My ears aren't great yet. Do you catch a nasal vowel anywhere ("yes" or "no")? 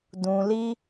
yes